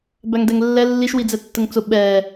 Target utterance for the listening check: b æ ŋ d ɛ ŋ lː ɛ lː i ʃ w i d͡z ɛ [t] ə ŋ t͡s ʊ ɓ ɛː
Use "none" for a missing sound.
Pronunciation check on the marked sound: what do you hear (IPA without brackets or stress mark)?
tː